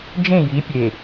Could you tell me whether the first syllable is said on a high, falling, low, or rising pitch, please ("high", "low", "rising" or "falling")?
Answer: falling